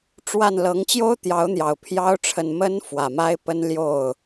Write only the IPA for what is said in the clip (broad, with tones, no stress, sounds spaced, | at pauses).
ʈ͡ʂ w a˥˩ n l ɤ˧˥ ŋ t͡ɕ j o˥ ʊ̯ t̪ j ɑ˧˥ ʊ̯ n̪ j ɑ˨˩ ʊ̯ pʰ j ɑ˧˥ ʊ̯ ʈ͡ʂʰ ə˨˩ n m ə˧˥ n f w ä˨˩ m a˥ ɪ̯ p ə˥ n l j o˥˩ ʊ̯